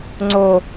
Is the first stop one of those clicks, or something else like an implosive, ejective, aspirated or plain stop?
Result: click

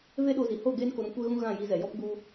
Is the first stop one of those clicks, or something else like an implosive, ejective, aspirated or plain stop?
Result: implosive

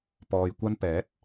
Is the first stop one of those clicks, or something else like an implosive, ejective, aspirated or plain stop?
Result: plain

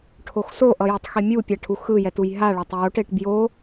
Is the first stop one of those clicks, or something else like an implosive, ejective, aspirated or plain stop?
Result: aspirated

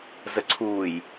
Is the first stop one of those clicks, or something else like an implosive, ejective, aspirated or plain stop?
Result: click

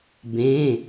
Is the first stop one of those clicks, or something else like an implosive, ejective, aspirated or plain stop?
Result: plain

